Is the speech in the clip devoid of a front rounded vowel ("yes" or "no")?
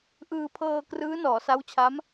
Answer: yes